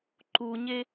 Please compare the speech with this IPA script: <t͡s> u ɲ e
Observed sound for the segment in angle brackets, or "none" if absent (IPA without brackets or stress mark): ǃ